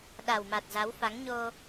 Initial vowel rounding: unrounded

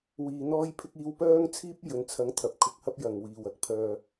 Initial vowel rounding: unrounded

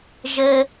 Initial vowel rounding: unrounded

